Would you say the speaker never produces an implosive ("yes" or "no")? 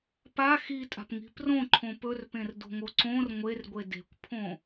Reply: yes